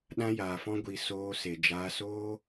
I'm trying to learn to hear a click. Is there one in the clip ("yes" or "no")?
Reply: no